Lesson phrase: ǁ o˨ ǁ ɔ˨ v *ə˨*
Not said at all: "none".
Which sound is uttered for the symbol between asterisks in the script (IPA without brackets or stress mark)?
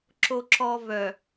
œ˨